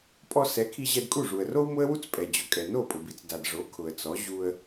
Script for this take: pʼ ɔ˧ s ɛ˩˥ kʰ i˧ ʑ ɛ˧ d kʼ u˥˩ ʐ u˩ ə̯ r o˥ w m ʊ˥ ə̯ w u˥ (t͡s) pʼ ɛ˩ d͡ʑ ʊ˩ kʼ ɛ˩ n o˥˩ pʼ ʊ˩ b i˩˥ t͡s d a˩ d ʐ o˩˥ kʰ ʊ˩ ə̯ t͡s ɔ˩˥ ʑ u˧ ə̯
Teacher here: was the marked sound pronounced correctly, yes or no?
yes